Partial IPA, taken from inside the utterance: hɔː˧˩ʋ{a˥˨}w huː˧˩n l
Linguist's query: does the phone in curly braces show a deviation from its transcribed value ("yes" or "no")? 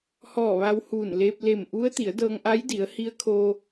yes